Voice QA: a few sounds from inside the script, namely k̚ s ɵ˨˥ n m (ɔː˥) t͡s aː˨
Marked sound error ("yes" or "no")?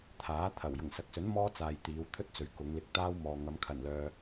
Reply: no